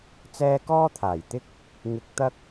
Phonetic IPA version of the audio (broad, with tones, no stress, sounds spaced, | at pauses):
t͡s ɛː˧ k ɔː˥ t̪ʰ aː˨˩ j t̪ ɪ˧ k̚ | ŋ ɪ˧ k̚ t̪ ɐ˥ k̚